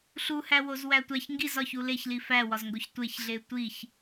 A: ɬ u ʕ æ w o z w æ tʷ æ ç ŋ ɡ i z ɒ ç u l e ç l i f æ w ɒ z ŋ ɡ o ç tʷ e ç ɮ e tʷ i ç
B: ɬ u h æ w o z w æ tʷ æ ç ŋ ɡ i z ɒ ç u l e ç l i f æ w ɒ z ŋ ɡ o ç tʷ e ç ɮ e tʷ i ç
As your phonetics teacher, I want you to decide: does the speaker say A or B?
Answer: B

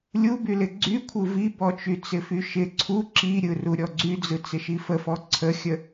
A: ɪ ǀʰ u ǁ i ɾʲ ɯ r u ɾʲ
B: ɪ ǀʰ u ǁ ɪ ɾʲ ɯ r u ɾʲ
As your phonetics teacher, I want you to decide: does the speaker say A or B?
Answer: A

